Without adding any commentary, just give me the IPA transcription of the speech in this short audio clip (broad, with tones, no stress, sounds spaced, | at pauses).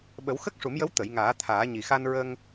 ɓ ə˨˩˦ w x ə˦˥ k̚ ʂ u˨˩˦ m j ə˧˥ w t̪ ə˨˩˨ j ŋ aː˨˩˦ t̪ʰ aː˨˩˦ ɲ i˨˩ x a˧ n ɹ ə˧ ŋ